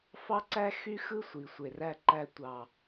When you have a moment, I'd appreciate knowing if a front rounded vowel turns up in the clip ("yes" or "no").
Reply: yes